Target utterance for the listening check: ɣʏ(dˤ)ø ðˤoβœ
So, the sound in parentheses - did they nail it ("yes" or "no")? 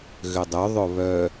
yes